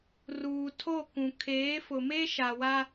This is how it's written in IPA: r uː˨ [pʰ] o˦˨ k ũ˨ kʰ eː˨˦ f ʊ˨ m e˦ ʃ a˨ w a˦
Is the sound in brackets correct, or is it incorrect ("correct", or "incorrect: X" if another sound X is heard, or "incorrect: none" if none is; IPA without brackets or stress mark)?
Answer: incorrect: tʰ